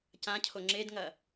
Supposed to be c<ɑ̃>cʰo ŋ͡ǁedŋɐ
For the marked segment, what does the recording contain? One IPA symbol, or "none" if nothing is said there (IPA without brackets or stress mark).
ã